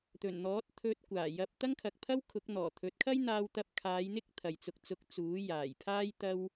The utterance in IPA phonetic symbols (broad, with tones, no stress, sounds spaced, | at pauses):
t̪ ɵ˨˩ n n̪ ɔː˨˥ t̚ t̪ʰ ɵ˧ t̚ kʷ aː˨˩ j ɐ˧ p̚ t̪ ɐ˥ ŋ kʰ ɐ˨ k̚ pʰ ɐ˥ w kʰ ʊ˨˥ k̚ n̪ ɔː˨˩ t̪ʰ ɵ˨˥ t̚ kʰ ɐ˥ j n̪ aː˧ w t̪ ɐ˧ p̚ kʰ aː˨˧ j n̪ ɪ˥ k̚ t̪ʰ ɐ˨ j t͡s ʊ˧ k̚ t͡s ʊ˧ k̚ t͡s uː˨˥ j aː˨˩ j pʰ aː˥ j t̪ ɐ˥ w